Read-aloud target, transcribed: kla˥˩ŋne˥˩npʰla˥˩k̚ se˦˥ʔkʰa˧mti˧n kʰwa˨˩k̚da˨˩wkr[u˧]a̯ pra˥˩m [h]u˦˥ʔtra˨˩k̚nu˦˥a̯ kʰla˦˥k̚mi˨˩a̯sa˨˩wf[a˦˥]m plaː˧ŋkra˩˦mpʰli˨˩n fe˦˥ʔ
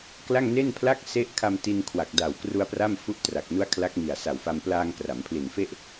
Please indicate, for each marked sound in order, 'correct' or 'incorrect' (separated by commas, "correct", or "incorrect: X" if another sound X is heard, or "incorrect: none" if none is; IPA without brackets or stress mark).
correct, incorrect: f, incorrect: a˧